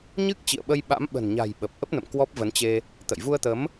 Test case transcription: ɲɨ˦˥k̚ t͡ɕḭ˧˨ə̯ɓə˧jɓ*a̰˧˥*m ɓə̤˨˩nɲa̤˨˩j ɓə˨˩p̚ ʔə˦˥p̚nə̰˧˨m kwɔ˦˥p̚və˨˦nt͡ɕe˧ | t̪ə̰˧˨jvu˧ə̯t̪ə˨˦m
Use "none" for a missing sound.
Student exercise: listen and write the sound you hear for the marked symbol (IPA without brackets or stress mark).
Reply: a̰˧˥